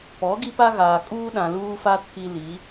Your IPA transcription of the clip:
p ɔ˨˦ ɡ i˦ p a˦ ɣ aː˨ kʼ uː˦ ɗ ã˨ l uː˦ f a˦ tʰ i˦ l i˨˦

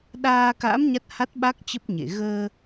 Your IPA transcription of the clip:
ɗ aː˧ k a̰˧˥ m ɲ a˦˥ t̚ h a˦˥ t̚ ɓ a˦˥ k̚ t͡ɕ ə˦˥ p̚ ɲ ḛ˧˨ ɣ əː˧

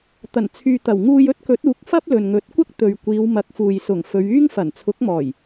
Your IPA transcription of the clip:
t̪ ɐ˨˩ n t͡sʰ yː˨ t̪ ɐ˨˩ w ŋ uː˧ j ɵ˥ t̚ k ɵ˨˥ t̚ uː˨˥ k̚ f ɐ˥ p̚ l ɵ˨ n ŋ ɵ˨˥ t̚ kʷ ɐ˥ k̚ t̪ ɵ˨ ɥ kʷ iː˨˧ w m ɐ˨˥ k̚ f uː˨ j s ʊ˨˩ ŋ f ɵ˨˧ ɥ yː˥ ŋ f ɐ˨˩ n t͡sʰ ʊ˨˥ k̚ m ɔː˨˩ j

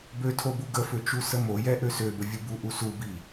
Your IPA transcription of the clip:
b ø tʰ o b u ɡ ə f ø t͡ʃ u s ə m o j ɛ ʔ ø s ø b ə vʲ u b u ʔ u s u b i

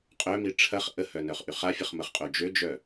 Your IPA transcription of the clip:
qʼ œ m i ʈ͡ʂʰ ɐ χ ʔ ə h œ n œ χ ʔ y χ a fʲ ə χ m ə χ qʼ o d͡ʒ ø d͡ʒ œ

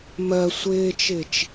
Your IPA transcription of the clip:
m ɜ sʷ ɪː t͡ʃ ɪː t͡ʃ

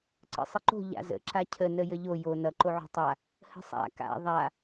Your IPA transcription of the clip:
ǀ ə̰ sˤ ə ǃ o̤ ʎ a̰ z ə̰ ǁ a cʰ ə n ə j ə ʎ o j o n ʌ ǃ o ʕ o̤ tˤ a | h ə̤ sˤ a̰ k a̰ ðˤ a

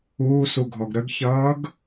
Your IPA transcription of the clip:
uː s u ɡʱ ɔ ɡ ɾ ə ɡ ç ʌː ɡ

